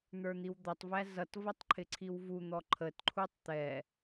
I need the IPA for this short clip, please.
n̪ə˞n̪iwd̪ʌtˤvæ zʌtvʌtˤ ǃʰɪǀʰiwvun̪ɔ ǃʰətǃʰutˤ t̪ɛ

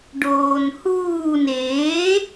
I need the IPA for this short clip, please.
ɖoːnhuːn e

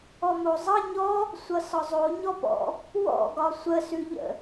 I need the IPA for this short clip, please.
ɔmozˤʌ ɲɔ | sʷʌsɒzˤo ɲɔpɔ̰ | wɔ̰ ɡɒsʷə sʉʎə̰

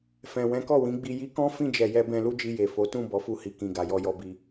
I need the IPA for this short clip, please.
fɛ̃˨ wɛ̃˨˦kɔ˦˨wĩ˨˦ɡ͡bi˧ ji˧kɔ̃˦ fĩ˦˨d͡ʒɛ˨jɛ˧ bɛ̃˧lu˦d͡ʒi˧ je˨ fo˨˦tũ˦˨ bɔ˨˦fu˧hi˨kĩ˨ ɡa˨jɔ˧jɔ˧bi˧

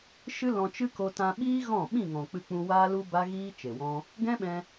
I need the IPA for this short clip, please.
ʃɨ˦ lɔ̃˧ t͡ʃɨ˦ko˧ tã˧ɓiː˦ ɣɔ̃˦˨ ɓĩ˦˨ ŋɔ̃˨k͡pɨ˧k͡pũ˧ waː˦lu˦ ba˦ɣiː˦ t͡ʃe˨wɔ̃˦ | ɡɛ̃˦ɓɛ̃˧

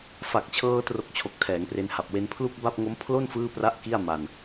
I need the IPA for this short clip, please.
fa˨˩k̚t͡ɕʰɤː˧tro˨˩k̚ t͡ɕʰo˨˩k̚tʰɛː˩˦ŋpre˧nha˨˩p̚ we˧n pʰlu˥˩k̚ ba˥˩p̚ŋo˦˥m pʰlo˥˩n fɯː˥˩pra˥˩ʔki˥˩a̯ma˧n

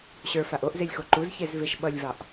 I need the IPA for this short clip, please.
ɕə˞faʔ oʔzelʲxo ǃuzçezveʃ ɓʌlʲvɑʔ

